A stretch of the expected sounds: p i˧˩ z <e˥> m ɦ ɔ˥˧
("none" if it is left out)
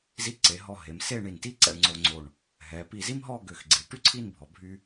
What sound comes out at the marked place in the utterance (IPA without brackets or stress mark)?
i˥